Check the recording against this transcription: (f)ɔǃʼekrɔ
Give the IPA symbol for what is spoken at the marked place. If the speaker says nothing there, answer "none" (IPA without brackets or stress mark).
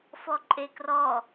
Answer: f